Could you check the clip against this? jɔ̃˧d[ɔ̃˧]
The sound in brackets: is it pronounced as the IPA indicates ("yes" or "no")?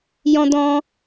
yes